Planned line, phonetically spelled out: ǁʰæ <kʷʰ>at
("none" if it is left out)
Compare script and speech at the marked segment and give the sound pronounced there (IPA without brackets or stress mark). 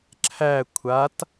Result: kʷʰ